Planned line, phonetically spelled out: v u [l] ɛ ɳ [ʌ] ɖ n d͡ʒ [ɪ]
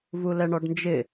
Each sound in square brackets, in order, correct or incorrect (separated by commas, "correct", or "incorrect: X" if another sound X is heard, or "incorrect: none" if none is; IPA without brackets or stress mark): correct, incorrect: ɔ, correct